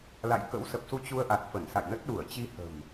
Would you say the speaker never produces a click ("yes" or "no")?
yes